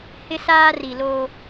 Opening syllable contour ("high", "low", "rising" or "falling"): high